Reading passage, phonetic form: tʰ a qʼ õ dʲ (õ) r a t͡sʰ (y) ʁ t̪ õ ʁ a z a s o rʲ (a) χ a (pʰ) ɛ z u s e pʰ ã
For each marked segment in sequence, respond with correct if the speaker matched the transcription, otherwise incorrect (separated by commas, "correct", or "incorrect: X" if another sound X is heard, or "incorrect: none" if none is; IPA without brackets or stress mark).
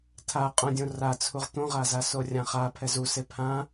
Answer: correct, incorrect: u, incorrect: ã, correct